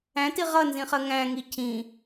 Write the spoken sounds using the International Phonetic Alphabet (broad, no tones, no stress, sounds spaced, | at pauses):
æ̃ t i ʁ ʌ n z ĩ χ ɜ ŋ æ̃ ŋ i cʰ ĩ